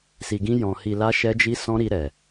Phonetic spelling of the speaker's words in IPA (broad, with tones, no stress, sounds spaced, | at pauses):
s i˨ ɡ ĩ˧ j ɔ̃˨ h i˨ l a˧ ʃ ɛ˧ d͡ʒ i˧ s ɔ̃˧ ɾ i˧ ɾ ɛ˨